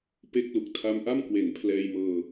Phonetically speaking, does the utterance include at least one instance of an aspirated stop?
yes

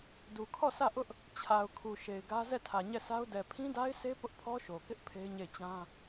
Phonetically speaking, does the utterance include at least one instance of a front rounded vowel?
no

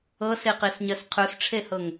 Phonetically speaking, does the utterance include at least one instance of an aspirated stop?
yes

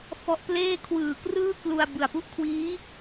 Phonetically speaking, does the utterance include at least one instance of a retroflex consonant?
no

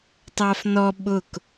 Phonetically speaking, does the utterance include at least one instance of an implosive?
yes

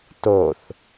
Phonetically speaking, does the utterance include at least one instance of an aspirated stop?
no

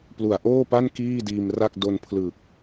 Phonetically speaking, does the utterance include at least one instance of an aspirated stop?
yes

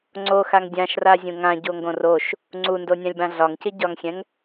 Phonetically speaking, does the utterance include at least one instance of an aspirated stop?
no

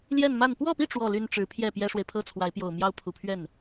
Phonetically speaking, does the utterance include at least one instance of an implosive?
no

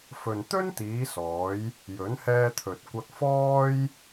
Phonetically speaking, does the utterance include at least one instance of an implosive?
no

